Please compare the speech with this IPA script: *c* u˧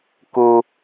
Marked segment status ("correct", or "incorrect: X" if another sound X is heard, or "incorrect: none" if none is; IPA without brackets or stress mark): incorrect: k